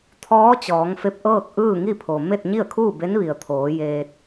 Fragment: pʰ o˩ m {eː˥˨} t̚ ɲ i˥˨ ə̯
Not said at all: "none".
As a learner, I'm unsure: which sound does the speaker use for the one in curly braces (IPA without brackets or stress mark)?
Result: e˥˨